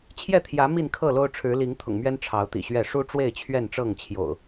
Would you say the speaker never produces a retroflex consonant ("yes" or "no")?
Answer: no